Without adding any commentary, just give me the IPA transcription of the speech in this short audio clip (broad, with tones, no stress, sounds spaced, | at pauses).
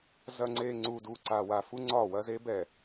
z ɐ˨ ŋ͡ǀ e˨ ŋ͡ǀ u˨ d u˨ ǀ a˨ w a˨ f u˦ ŋ͡ǀ ɒ˦˨ w ɐ˦ z e˦ b ɛ˨